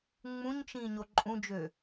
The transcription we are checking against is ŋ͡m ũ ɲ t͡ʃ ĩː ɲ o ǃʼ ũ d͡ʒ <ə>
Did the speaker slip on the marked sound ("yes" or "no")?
yes